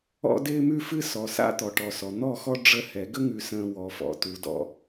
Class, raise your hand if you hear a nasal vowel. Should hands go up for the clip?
yes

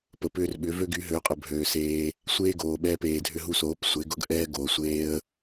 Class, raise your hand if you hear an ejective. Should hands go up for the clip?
yes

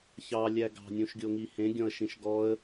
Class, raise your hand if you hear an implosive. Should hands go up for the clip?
no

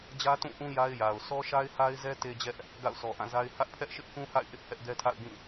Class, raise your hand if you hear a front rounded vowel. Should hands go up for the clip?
no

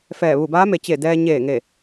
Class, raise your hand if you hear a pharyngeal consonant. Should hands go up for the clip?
no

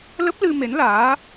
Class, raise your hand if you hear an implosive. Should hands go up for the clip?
no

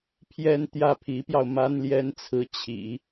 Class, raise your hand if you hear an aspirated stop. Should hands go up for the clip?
yes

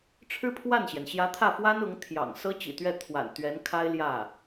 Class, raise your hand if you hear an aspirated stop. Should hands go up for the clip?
yes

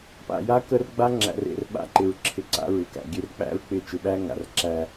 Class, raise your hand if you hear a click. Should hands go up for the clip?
yes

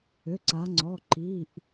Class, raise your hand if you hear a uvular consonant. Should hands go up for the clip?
no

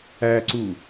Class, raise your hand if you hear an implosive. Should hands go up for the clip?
no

